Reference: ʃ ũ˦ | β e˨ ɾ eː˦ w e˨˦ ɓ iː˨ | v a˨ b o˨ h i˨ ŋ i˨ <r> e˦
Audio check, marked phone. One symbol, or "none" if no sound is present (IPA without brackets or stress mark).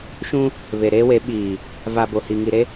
ɾ